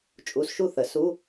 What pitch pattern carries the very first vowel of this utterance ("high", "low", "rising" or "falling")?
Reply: rising